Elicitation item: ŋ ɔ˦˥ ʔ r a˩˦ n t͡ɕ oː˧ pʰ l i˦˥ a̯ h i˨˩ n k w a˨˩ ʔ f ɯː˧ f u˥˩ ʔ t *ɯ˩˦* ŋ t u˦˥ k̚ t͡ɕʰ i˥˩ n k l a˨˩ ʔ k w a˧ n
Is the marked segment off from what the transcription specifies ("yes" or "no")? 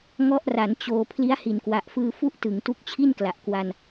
no